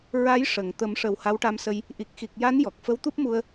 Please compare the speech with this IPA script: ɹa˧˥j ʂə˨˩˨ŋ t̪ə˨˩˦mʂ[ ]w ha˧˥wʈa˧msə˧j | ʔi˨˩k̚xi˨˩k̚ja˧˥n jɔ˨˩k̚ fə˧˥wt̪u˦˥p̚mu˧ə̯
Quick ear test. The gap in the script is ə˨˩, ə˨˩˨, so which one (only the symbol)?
ə˨˩